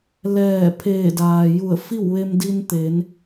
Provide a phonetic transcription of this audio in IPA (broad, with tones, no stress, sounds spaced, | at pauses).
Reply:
l ɛː˧˩ pʰ eː˧˩ d aː˩ j u˧˩ ə̯ f i˥˨ w ʋ e˧ m d i˧ n t̪ e˩˧ n